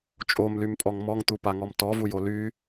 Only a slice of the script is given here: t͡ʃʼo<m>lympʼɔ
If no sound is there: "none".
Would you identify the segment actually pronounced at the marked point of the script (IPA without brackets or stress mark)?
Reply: m